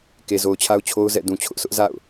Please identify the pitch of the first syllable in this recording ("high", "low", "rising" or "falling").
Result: low